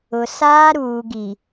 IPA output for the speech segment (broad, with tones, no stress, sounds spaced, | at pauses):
ʊ˨ s aː˦ ɾ uː˨ ɡ i˨